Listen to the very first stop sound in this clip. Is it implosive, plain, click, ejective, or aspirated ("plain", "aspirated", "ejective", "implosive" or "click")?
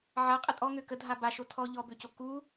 ejective